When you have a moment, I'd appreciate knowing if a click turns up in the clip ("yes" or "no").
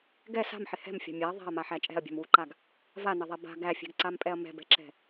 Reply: yes